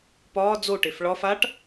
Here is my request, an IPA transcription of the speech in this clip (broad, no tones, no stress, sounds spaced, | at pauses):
p ɒː d͡z o ʈ e f ɭ ɒ f a ʈ